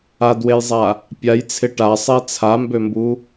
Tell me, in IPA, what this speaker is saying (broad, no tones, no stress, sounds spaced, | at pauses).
a d w e j zˤ a | pʲ a j t͡sʰ ɪ ʈ a sˤ e t͡sʰ a m b ø m b u